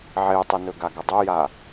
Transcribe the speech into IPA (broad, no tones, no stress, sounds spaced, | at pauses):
ʕ e tˤ ɨ n ɵ ɡ a ɡ ɐ dˤ ɵ j a